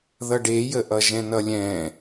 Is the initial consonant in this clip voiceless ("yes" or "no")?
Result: no